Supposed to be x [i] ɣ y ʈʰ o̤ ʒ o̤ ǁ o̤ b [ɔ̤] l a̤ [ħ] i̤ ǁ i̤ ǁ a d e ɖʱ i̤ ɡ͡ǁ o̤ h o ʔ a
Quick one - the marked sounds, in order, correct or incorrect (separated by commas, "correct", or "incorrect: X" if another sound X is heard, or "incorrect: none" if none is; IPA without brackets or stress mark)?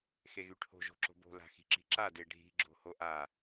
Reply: incorrect: e, incorrect: o̤, incorrect: x